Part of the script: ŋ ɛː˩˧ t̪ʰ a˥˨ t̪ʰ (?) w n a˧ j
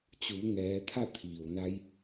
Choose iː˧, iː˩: iː˩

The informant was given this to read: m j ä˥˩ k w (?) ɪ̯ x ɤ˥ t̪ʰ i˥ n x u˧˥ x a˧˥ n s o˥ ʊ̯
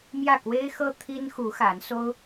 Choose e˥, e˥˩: e˥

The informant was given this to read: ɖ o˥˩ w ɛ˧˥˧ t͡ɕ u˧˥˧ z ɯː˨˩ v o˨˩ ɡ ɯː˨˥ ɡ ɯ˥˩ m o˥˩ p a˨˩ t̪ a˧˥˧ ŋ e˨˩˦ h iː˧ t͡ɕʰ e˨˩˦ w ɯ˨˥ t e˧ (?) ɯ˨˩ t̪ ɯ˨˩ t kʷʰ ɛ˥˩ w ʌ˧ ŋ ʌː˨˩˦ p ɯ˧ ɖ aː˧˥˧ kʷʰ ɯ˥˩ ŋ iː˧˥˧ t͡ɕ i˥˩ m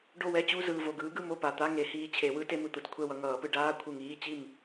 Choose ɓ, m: m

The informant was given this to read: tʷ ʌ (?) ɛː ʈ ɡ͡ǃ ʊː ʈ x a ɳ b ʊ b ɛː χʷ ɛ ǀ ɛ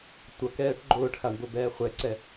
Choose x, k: k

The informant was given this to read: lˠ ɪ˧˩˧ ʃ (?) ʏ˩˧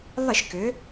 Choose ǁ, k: k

